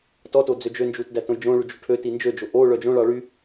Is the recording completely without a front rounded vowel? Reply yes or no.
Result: no